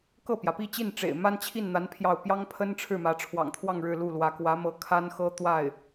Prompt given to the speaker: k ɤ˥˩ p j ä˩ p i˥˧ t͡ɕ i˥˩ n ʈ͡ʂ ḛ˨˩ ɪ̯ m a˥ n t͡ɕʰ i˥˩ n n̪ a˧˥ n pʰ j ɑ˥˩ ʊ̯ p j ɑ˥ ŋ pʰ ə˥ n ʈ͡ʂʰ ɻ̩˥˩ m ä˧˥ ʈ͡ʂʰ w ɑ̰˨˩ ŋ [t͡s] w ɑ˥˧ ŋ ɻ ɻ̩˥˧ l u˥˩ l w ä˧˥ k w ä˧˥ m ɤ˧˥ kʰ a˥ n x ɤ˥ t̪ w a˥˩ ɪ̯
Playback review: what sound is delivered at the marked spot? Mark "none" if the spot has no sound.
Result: t̪ʰ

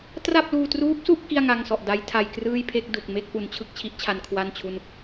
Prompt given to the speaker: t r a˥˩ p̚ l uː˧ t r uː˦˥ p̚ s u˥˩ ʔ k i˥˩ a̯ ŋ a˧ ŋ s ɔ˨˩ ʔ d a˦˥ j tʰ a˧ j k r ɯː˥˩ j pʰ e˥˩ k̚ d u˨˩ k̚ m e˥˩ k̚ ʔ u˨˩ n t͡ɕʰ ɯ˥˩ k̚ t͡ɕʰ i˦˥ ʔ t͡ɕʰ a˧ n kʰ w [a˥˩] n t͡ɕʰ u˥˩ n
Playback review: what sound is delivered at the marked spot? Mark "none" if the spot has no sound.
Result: a˥˩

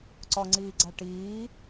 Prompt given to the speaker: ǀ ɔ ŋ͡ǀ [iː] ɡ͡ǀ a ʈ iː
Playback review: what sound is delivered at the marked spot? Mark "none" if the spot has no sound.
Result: iː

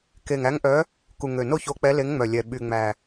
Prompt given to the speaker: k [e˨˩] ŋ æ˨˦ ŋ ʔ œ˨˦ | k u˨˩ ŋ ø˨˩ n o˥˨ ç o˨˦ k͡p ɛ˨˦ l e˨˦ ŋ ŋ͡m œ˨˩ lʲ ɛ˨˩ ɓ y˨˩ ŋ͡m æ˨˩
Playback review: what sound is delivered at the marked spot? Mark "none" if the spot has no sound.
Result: e˨˩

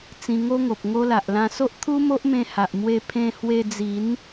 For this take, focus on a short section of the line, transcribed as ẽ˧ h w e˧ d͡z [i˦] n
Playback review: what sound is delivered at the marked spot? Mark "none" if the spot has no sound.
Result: i˨˦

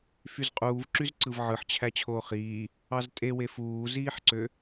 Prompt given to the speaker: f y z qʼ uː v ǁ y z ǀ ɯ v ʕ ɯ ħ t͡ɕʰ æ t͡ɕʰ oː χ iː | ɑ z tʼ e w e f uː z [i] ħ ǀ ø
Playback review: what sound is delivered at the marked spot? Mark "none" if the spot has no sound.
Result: iː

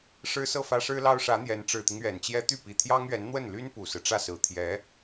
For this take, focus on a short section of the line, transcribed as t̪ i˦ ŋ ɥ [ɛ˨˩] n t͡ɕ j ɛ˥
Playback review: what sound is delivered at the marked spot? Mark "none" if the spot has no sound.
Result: ɛ˨˩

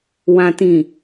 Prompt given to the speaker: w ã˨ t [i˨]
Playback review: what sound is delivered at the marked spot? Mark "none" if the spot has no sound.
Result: ĩ˨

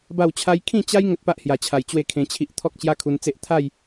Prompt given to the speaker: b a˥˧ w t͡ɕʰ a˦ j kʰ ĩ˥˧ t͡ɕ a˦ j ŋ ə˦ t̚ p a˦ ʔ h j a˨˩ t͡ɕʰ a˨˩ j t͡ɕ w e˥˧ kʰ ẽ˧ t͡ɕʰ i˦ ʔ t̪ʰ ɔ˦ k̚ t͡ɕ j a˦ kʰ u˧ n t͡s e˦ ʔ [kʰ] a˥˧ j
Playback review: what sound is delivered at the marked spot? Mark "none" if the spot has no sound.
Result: t̪ʰ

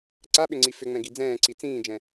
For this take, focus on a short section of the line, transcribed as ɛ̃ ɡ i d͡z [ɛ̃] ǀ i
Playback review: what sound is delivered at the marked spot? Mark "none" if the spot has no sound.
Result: ɛ̃ː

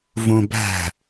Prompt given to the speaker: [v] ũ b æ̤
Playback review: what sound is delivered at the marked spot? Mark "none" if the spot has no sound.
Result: v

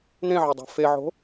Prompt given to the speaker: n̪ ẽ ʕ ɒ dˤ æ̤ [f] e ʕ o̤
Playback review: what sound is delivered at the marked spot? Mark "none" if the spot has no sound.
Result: f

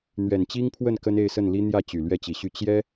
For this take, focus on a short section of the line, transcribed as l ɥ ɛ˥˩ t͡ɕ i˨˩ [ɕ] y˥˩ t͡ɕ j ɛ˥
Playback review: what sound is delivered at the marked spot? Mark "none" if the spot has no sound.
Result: ɕ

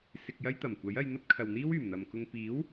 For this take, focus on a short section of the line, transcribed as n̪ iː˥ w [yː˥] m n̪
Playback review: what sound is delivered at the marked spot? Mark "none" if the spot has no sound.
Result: yː˨˩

